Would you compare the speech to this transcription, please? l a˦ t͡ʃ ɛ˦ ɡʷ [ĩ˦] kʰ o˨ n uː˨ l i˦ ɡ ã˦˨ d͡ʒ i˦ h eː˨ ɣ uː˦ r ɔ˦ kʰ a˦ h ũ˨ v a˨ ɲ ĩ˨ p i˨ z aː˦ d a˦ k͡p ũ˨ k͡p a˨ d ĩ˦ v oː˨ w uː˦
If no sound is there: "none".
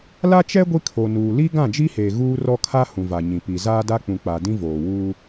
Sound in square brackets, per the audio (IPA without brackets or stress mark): i˦